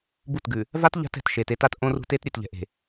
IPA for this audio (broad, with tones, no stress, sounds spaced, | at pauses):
b u˦˨ t ɡ ʉ˨ | v a˦ t ʎ a̤˦ t ɛ̤˨ t ʃ e˨ t e˦ t a˦ t ʔ õ˦ r ṳ˦ t e˦ t ɾʲ ʉ˨ t ʎ ɛ̤˨ ʔ e̤˨